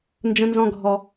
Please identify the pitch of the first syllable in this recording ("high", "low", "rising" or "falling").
high